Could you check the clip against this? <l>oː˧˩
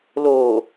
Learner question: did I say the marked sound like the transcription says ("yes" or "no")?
yes